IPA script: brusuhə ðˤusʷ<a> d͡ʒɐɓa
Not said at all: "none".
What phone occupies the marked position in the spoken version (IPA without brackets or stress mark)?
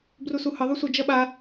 ə